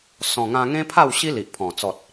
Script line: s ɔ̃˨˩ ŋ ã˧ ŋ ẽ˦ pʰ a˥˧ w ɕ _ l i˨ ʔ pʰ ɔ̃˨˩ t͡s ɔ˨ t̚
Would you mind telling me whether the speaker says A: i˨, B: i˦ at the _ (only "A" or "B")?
B